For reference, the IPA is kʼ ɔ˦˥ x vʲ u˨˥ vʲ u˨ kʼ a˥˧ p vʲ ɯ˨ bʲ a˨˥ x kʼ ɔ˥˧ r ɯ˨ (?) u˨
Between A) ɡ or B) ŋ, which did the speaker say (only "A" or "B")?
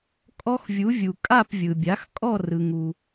B